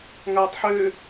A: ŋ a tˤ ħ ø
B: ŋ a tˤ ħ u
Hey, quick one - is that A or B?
A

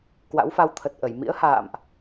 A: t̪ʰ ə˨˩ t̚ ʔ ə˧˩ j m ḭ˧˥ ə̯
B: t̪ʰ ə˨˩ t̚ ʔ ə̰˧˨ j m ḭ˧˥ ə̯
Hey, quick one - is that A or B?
A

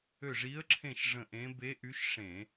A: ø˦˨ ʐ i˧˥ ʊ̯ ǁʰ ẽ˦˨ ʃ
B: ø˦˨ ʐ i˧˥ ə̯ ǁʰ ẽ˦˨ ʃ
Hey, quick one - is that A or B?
B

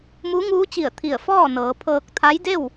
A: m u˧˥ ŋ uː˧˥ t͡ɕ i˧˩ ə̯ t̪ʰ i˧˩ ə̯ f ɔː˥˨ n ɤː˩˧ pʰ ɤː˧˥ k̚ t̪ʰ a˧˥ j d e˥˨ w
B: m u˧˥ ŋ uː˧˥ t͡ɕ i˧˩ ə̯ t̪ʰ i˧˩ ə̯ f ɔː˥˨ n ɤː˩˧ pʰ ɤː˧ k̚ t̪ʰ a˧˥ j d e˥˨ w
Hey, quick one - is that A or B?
B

